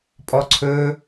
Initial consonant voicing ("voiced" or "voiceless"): voiceless